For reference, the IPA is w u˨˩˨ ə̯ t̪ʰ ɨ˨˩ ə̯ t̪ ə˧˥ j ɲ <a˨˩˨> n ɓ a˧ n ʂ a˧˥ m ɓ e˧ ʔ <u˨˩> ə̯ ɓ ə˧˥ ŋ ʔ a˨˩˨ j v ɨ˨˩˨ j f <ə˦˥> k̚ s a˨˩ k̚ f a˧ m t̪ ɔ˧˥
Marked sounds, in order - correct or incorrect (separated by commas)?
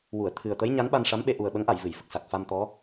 incorrect, correct, incorrect